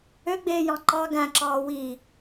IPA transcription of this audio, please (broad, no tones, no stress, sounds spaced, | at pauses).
ø ɡ͡b eː j ɑ̃ ǃ ɑ ɡ æ̃ ǁ ɑː w i